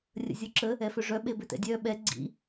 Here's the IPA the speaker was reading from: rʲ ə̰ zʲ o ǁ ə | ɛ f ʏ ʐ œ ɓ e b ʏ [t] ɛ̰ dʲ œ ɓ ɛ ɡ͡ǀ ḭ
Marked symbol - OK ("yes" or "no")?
yes